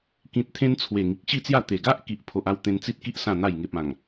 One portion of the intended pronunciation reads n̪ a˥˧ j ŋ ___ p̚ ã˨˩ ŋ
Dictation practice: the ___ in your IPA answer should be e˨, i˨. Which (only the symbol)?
e˨